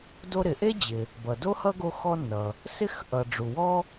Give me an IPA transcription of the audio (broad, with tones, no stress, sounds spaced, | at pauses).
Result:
d o˥ ɾ ɪ˩ ʔ e˥ d͡ʑ ɪ˩ | b ʌ˩ d o˥ h ʌ˥ ɡ o˥ x ɔ˥ nː ʌ˩ | s ɪ˥ x ʔ ʌ˩ ɖ͡ʐ u˩ w ɔ˥